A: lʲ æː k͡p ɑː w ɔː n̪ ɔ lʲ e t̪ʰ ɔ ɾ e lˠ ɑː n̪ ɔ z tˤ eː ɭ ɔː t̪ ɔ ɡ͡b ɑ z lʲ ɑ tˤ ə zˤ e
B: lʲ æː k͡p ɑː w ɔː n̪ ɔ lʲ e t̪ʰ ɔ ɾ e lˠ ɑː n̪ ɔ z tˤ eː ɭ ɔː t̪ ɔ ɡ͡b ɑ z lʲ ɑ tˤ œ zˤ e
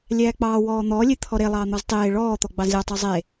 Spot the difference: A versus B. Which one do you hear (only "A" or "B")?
B